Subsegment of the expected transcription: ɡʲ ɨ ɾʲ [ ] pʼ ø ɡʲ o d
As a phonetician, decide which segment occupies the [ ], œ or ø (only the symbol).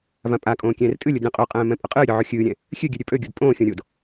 ø